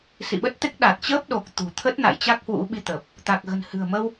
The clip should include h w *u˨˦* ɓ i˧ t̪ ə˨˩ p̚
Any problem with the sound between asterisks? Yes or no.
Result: yes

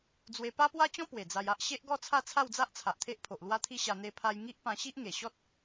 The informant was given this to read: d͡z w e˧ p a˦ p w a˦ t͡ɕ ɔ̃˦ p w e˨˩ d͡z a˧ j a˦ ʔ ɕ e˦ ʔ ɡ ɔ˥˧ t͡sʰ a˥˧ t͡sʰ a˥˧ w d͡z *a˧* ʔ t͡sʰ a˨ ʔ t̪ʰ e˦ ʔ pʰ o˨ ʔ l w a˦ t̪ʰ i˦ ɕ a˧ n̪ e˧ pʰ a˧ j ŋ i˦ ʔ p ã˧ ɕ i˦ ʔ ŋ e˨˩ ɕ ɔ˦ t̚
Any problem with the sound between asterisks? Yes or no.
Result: yes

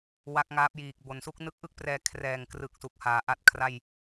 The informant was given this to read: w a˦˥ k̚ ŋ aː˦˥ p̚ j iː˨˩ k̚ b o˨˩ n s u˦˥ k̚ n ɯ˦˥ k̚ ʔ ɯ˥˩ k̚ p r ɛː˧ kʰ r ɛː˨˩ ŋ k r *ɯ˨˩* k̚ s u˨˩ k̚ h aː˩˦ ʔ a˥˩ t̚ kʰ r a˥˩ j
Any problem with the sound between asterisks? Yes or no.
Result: no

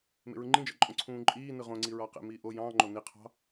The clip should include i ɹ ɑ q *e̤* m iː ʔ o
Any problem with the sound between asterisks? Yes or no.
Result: yes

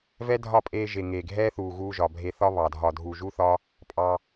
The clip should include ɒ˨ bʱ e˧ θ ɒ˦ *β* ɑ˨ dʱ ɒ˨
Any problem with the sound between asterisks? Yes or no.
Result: no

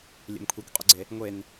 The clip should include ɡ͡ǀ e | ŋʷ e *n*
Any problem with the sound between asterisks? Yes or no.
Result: no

